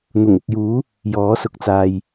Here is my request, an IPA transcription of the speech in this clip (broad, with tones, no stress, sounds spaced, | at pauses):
n̪ ʊ˨˩ ŋ ʊ˨ k̚ j uː˨˥ | j ɔː˨˥ s ʊ˨˥ k̚ t͡s aː˨ j